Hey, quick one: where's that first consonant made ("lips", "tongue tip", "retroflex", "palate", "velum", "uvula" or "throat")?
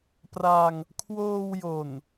lips